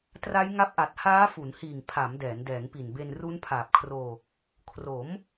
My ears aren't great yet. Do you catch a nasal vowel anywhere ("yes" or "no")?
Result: no